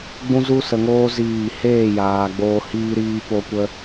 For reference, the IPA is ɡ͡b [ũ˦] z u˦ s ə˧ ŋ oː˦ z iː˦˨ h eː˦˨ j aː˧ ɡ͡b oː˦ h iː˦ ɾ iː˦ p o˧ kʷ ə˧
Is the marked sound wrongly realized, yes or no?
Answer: no